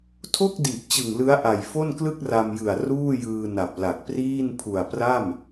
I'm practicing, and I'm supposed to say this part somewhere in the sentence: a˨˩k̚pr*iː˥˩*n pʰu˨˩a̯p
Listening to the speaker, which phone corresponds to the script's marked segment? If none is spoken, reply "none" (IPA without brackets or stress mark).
iː˥˩